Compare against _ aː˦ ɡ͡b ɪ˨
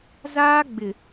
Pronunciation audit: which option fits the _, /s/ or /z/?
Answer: z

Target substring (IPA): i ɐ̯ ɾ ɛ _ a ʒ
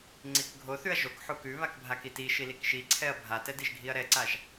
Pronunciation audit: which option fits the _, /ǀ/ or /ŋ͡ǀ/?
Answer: ǀ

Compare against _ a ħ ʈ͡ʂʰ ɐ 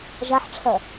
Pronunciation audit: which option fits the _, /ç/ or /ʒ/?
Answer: ʒ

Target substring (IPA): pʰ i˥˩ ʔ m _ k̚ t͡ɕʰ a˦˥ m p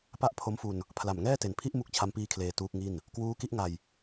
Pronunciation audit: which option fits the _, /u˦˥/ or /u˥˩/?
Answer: u˦˥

